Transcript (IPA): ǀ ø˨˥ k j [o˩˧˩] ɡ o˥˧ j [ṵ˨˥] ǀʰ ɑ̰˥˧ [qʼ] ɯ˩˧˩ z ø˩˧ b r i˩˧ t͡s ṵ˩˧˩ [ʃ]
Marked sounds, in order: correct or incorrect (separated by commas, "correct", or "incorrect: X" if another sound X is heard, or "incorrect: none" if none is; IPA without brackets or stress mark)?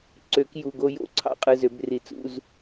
incorrect: u˩˧˩, incorrect: o̰˨˥, correct, incorrect: z